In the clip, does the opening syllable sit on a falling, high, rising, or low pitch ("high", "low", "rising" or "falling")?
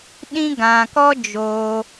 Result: high